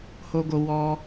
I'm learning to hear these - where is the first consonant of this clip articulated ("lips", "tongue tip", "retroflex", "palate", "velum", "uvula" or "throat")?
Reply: throat